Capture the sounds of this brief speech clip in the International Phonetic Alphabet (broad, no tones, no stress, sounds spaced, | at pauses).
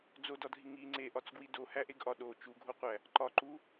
d͡z o d ɒ dʱ i ŋ i ŋ͡ǀ e ʔ ɒ t͡s ɡ w i d o h æ ʔ e ɡ ʔ ɒ ɗ o t͡ʃ u ɡʱ o qʷ æ | ǃ ɒ ǃ u